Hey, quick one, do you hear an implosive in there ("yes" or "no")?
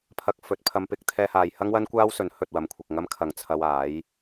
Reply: no